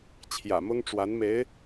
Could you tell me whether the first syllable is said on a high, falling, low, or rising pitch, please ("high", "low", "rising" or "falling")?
low